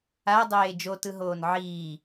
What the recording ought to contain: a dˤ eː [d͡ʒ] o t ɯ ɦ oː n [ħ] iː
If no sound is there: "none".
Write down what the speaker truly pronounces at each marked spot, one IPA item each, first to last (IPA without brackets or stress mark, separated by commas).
d͡ʒ, ʕ